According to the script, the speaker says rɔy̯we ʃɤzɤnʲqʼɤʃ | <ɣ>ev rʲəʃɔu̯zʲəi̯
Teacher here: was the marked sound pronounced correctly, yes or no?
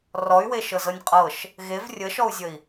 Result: yes